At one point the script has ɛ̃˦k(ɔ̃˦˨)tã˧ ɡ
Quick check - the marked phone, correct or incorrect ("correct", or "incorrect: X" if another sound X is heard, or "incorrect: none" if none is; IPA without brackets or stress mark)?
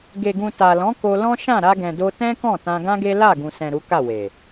correct